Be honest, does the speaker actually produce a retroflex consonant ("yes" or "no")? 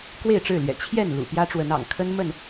yes